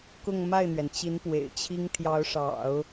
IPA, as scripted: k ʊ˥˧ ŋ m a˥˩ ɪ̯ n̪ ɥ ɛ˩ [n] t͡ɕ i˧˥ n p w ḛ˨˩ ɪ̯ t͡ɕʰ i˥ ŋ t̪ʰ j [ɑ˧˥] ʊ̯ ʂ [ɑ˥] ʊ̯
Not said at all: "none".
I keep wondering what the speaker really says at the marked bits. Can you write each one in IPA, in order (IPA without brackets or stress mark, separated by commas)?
n, ɑ˧˥, ɑ̰˨˩˦